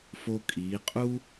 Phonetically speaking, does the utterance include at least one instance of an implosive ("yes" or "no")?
no